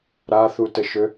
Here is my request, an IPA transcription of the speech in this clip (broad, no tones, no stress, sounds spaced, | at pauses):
ɾ a θ u t ə ʃ ø